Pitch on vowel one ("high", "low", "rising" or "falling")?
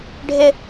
high